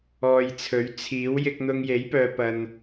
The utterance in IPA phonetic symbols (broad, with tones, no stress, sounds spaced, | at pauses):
ɔː˧ j t͡sʰ ɵ˨˥ ɥ t͡sʰ iː˨˥ w j ɪ˧ k̚ n̪ ʊ˧ ŋ j e˨˥ j p œː˨ p ɐ˨ n